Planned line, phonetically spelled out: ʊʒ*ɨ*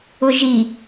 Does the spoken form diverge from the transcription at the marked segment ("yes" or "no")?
yes